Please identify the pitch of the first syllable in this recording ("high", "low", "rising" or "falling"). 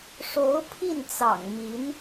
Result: rising